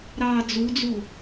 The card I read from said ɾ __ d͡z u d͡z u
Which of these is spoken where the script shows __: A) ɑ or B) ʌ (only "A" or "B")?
A